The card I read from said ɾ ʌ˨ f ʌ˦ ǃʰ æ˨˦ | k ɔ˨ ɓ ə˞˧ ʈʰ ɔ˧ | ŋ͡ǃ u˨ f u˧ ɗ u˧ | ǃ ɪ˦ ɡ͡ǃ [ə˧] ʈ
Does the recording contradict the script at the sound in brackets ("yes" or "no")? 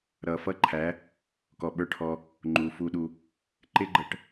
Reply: no